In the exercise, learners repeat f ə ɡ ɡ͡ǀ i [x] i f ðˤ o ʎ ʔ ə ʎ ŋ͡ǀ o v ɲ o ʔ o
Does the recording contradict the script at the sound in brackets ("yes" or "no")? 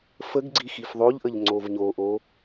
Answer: no